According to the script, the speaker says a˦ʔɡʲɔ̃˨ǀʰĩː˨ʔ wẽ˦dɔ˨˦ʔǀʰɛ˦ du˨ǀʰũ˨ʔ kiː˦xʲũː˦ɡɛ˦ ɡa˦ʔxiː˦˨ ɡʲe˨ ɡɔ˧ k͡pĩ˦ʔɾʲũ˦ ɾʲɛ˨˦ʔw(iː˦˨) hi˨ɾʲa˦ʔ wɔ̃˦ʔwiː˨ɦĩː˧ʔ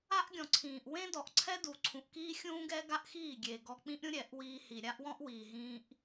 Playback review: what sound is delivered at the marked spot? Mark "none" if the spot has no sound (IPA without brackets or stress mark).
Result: iː˧